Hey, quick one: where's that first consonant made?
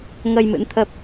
velum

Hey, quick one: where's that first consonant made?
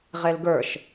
uvula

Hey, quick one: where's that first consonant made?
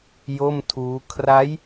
palate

